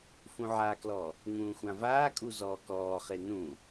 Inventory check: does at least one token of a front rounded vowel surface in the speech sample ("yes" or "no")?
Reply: no